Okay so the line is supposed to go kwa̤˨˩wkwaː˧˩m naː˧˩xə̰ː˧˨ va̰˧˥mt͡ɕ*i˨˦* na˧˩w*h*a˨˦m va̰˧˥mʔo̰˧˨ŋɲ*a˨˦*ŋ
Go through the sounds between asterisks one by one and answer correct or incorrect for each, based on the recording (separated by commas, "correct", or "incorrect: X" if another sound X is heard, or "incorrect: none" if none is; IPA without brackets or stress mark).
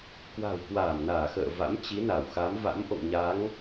correct, incorrect: x, correct